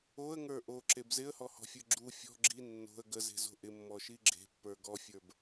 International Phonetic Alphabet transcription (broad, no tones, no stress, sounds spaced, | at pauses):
o ə̯ ŋ ə˞ ʔ o ǁ e b z ɪ ə̯ h ɔ h ɔ̤ fʲ ə˞ ɡ͡ǁ u fʲ ɔ̤ ɡ͡ǁ i nː o̤ ə̯ ɡ ə z e̤ z o̤ ʔ ɪ mː ɔ ʃ i ɡ͡ǁ e̤ pː ə˞ ɡ ɔ fʲ ə˞ b